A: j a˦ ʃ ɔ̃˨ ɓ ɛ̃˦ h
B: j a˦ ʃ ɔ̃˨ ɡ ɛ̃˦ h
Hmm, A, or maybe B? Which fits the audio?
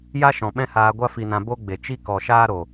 A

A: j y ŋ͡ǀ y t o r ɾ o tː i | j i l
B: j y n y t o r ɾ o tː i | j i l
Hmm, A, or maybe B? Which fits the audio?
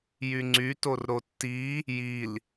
A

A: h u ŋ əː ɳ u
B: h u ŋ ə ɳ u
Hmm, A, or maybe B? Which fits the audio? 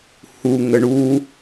B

